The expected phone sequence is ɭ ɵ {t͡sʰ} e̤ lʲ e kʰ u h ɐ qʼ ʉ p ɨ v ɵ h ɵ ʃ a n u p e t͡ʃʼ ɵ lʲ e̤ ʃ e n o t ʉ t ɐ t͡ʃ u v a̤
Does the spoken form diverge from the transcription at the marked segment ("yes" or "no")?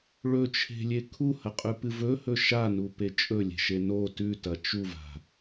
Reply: yes